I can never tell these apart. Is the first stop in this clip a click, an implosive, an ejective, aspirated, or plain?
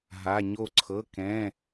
click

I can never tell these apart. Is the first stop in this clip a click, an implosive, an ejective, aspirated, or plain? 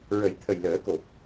aspirated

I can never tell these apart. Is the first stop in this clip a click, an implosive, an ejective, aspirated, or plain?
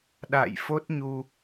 implosive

